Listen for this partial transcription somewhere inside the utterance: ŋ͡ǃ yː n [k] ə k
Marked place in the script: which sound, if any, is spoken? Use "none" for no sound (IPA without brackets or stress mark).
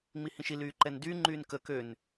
k